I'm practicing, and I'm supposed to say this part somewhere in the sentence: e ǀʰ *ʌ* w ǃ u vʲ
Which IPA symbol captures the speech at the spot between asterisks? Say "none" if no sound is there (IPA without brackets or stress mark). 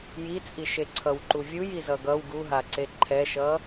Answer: ʌ